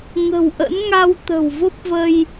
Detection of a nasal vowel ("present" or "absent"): absent